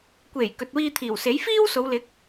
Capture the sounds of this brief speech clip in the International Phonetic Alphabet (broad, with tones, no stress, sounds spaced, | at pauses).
kʷ e˨˩ j k ɵ˨ t̚ w iː˧ t̪ʰ iː˨˩ w s e˨˥ j f iː˥ w s o˨˧ w l ɪ˨˥ k̚